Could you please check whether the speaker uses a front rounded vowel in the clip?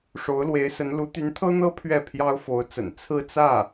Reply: yes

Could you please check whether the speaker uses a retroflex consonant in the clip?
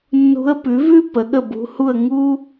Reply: no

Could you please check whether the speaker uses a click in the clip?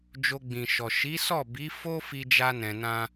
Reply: no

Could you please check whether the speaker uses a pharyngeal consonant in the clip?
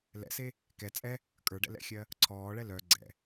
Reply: no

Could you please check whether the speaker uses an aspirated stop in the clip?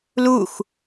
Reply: no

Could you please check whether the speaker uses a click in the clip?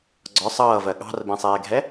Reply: yes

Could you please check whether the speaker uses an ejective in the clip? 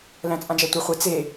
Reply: yes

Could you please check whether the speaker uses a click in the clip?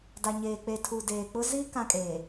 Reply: no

